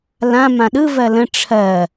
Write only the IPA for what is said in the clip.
lã mãɗɯ vɜlə̃ ʈ͡ʂʰɜ

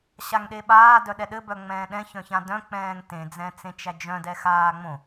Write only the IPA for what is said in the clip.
ɕaŋɗeɓaː dœɗɛɗɘ bœŋ͡mɛ̃ːɗɛ̃ çœ̃çãdœ̃ k͡pɛ̃ːŋtẽ d͡zɛ̃t͡sẽt͡ʃæd͡ʒœ̃d ɛxaːŋ͡mõ

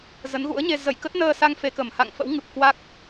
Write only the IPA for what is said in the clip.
zə˨˦nɣṵ˧˥ə̯ɲe˧ zə˧˩jkə˦˥t̚nəː˧sa˧ŋ fe˧kə˧˩mha̰˧˨ŋ fə̰˧˥wŋɨ˨˩p̚kwa˦˥k̚

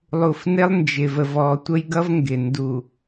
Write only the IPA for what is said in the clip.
lˠu˨fnɪ˦lˠ nd͡ʒɪ˨və˨v ɔː˨tʷə˦jɡʌ˦v ŋɡɪ˨ ndu˨

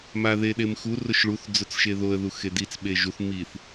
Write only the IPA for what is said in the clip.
maðeɗemxu rʊʃɭuθ d͡zʊt͡sʃeðoə̯ ðuxedit͡s ɓeʒuθ miθ

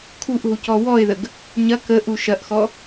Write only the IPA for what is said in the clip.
kʰuʔɦucɔ wɔɪ̯ðəɡ | ɲɐ kəʔu ʃɐʔxɔ

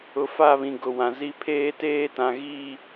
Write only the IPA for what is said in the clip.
ʊ˨fa˦˨βĩ˨ ɡʊ˨ wã˨zi˦ pʰeː˦teː˦tã˨ ɣi˦˨

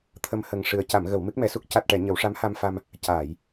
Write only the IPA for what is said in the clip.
t̪ʰə˧mhə˨˩ŋʂɨ˨˩ə̯ ca˨˩˨mɣə˨˩˨w mɨ˦˥k̚mɛ˧su˦˥k̚ ca˨˩t̚ʈɛ˨˩˨ ɲə˨˩˦wʂa˧˥mha˧mfa˧m | caː˨˩˨j

